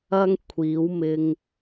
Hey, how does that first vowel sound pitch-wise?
high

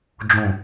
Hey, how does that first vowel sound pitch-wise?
low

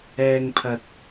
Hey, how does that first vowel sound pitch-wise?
low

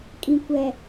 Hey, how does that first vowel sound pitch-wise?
low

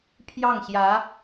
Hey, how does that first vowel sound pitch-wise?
falling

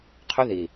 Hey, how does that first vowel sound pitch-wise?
high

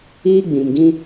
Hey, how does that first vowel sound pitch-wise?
high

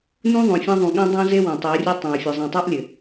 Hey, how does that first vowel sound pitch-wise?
high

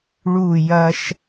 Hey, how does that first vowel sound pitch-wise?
falling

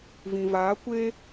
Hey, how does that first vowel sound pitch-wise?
low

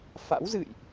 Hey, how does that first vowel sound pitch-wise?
rising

